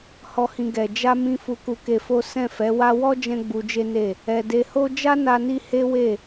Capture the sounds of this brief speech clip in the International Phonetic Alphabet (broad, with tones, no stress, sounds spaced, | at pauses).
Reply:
h ɔ˨ h ĩ˨ ɡ ɛ˨ d͡ʒ a˧ m ĩ˧ f u˧ k u˧ k e˧ f o˦ s ɛ̃˦˨ f ɛ˨˦ w a˦ w ɔ˦ d͡ʒ ɛ̃˦ ɡ͡b u˧ d͡ʒ e˦ n e˦˨ | ɛ˨ d e˨ h o˧ d͡ʒ a˦ n a˧ n i˧ h e˦ w e˦˨